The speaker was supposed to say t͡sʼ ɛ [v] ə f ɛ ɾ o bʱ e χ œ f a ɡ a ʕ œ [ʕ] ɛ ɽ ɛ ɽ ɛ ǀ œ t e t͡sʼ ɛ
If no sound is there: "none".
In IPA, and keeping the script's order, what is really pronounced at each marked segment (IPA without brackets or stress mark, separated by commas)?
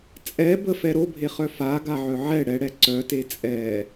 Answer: b, ʕ